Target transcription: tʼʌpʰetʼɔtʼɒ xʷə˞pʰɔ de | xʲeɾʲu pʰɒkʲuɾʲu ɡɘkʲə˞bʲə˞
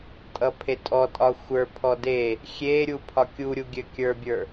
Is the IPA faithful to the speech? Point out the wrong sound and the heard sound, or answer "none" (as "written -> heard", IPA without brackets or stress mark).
ɡ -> ɡʲ